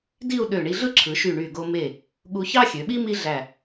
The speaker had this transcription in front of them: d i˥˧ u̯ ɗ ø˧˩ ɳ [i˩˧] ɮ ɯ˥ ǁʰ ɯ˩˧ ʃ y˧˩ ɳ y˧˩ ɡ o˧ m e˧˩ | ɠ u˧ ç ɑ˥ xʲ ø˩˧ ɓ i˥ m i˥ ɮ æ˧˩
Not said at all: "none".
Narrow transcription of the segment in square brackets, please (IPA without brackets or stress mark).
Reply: i˧